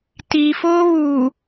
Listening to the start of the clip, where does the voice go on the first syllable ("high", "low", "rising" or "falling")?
low